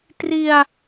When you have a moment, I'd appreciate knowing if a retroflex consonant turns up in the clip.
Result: no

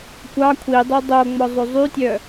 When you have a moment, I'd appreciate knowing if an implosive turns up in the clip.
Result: no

